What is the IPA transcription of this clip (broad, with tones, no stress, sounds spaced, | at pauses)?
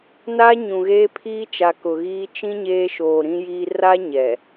n aː˦ ɲ ũ˨ ɣ eː˦ pʰ iː˦ t͡ʃ a˨ k ʊ˨ ɣ iː˦ t͡ʃ ĩ˦ ɲ eː˦ ʃ oː˨ ɾ ĩ˦ j iː˦ r a˦ ɲ ɛ˨